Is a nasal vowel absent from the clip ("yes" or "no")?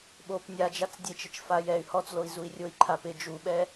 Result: yes